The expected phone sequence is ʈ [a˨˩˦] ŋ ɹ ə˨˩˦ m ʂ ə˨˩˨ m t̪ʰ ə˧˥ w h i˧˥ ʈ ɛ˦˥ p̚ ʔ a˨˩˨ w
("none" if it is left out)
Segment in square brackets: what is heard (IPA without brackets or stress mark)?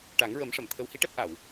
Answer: a˨˩˦